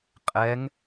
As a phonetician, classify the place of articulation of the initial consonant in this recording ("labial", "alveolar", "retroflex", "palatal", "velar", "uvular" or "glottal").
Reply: uvular